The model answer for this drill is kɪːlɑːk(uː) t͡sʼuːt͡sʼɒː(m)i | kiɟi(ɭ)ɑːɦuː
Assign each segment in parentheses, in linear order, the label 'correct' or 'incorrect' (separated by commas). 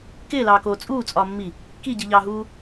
incorrect, incorrect, incorrect